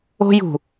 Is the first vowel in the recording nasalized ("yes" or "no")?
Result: no